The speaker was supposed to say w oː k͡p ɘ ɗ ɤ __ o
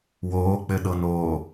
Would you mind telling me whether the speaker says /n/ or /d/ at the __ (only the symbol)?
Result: n